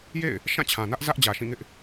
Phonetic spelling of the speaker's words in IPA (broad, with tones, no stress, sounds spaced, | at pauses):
j ḛ˦˨ ɪ̯ | ʃ ã˦˨ t͡ɕʰ ã˨ n ä˦ ʔ z ä˦ ʔ d͡ʑ ä˨ ʃ ĩ˦˨ ŋ ɪ˦ ʔ